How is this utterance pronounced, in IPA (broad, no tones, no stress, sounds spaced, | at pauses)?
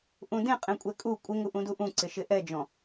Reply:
ʔ ũ d ẽ qʼ ẽ kʷʼ ɛ kʼ u kʷʼ ɪ ŋ u ʔ ũ d u ʔ ũ ǀ ɪ ʃ ɪ ʔ ɛ d͡ʒ ɔ̃